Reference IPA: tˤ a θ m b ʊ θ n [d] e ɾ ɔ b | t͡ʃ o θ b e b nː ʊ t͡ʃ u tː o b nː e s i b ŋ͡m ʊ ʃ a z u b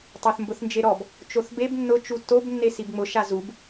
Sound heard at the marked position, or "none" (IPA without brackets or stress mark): d͡ʒ